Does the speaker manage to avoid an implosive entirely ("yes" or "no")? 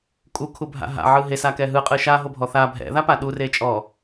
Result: no